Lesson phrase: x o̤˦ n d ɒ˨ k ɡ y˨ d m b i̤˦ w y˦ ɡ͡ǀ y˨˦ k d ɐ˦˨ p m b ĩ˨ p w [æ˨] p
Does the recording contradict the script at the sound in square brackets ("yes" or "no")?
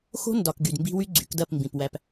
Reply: no